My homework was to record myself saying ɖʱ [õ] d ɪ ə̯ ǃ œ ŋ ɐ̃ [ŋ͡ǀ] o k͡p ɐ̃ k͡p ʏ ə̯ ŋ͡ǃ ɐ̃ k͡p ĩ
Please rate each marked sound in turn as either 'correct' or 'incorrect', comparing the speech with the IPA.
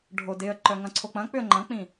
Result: incorrect: o, incorrect: ǀʰ

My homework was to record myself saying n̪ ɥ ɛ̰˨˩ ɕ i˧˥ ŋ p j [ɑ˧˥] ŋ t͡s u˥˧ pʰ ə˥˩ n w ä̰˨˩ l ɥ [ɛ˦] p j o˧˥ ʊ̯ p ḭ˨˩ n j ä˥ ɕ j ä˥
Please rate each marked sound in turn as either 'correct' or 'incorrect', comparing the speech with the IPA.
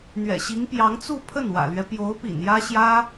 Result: correct, correct

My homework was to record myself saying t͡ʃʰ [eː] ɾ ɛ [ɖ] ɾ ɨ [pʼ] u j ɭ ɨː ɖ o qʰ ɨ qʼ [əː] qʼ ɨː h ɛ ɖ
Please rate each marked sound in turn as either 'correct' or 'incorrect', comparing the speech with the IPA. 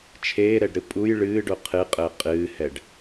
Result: correct, correct, correct, correct

